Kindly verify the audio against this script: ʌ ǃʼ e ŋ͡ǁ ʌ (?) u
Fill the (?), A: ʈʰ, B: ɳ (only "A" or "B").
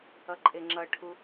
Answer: A